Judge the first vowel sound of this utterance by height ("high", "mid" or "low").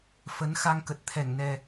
mid